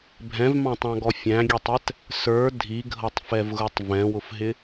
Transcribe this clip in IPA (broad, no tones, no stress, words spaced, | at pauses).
bʱɛ̃vmɑ̃tˤɑ̃ɡɔ fʲæ̃ɡʲɛtˤɛt | sə˞ dʱiɡʱʌtˤfɛvɣʊtˤ vɛ̃wʊfɦɪ